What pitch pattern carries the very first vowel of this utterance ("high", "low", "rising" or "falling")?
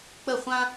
falling